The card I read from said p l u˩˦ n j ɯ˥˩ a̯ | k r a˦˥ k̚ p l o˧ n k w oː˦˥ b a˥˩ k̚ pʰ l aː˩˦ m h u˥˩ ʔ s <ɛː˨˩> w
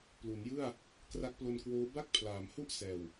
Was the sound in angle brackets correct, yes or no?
yes